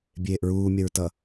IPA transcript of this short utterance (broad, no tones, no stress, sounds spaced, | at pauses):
bʲ eː ʔ ɹ uː mʲ ɐ ɹ t ʌ